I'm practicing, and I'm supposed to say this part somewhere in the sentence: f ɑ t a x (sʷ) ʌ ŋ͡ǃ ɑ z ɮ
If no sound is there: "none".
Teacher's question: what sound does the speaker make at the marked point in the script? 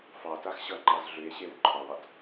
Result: ɕ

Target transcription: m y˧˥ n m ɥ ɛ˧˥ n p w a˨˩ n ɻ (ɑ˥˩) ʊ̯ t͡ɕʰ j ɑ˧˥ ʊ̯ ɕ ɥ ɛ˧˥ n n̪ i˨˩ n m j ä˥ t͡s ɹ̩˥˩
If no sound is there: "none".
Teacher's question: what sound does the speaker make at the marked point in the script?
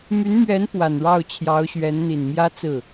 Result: ɑ˥˩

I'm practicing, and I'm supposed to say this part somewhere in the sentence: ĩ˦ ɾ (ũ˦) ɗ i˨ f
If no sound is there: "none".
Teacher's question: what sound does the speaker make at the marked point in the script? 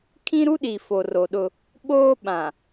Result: u˦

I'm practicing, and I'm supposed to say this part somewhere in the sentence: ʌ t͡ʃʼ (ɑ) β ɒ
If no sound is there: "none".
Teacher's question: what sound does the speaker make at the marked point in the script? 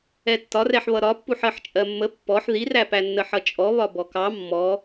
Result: ɔ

